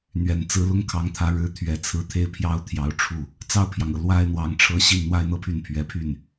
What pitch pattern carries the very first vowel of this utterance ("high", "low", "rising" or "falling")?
low